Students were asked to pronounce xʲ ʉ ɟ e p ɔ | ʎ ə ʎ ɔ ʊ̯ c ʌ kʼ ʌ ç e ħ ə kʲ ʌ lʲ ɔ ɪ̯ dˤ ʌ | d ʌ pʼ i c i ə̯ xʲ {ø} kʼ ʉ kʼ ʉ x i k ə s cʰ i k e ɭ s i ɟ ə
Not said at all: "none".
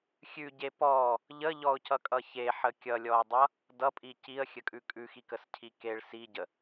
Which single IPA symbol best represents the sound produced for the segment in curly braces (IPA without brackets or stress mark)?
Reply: ə